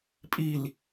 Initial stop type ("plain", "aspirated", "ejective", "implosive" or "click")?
ejective